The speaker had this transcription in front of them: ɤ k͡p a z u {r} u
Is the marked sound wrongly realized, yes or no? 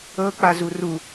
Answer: no